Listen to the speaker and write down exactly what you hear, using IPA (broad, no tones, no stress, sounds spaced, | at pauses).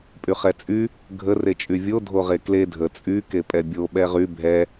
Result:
pʼ y χ ɛ t͡sʼ y | ɡʱ ə r e t͡ʃʼ y vʲ o dʱ o ʁ e k l e dʱ ə t͡sʼ y k e pʼ ɛ bʲ o ɓ ɛ ʁ y bʱ ɛ